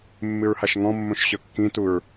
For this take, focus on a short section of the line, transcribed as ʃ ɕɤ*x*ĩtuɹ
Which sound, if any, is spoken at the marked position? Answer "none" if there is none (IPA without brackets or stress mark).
kː